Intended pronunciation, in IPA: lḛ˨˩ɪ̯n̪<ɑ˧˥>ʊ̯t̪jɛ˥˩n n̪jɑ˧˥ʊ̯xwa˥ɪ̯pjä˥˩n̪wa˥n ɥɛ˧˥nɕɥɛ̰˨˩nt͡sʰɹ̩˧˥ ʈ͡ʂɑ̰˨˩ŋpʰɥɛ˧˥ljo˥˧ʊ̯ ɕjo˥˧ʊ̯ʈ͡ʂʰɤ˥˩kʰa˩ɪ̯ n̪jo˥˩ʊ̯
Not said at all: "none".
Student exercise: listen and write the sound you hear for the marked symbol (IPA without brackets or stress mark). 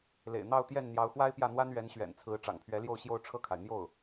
ɑ˥˧